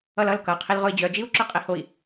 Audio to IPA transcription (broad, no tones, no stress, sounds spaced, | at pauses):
ʌ l ʌ l k ʌ qʰ i l ʁ ʊ i̯ d͡ʑ œ d͡ʒ i u̯ ǁ œ qʼ i h o i̯